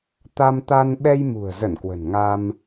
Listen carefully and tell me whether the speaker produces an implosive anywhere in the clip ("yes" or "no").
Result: yes